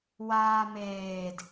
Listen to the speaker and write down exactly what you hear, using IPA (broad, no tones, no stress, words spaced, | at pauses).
waːmeːd